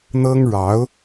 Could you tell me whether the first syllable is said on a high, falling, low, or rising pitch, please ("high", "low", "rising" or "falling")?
high